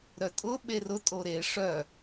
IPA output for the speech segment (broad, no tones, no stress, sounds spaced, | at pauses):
ɾ œ tʼ ʊ ɓ e r ʊ tʼ o ɾ e ʂ œ